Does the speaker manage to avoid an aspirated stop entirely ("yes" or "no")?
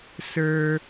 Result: yes